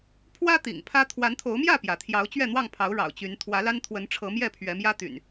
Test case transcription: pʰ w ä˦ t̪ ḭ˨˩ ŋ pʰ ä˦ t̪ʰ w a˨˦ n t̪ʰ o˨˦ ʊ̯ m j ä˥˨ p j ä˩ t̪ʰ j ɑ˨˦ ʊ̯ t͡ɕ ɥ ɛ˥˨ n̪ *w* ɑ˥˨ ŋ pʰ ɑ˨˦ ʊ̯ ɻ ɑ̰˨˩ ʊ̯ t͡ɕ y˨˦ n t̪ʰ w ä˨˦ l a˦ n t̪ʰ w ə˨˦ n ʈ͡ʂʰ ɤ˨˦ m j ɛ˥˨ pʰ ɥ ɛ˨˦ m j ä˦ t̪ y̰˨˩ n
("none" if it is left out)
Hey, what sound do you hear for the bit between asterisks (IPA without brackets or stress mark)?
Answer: w